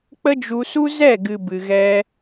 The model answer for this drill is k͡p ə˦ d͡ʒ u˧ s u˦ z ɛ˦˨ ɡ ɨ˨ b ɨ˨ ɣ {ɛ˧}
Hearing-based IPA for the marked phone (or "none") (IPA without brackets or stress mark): ɛ˧